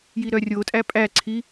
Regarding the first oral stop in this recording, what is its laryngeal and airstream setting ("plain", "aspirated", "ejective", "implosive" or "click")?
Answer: ejective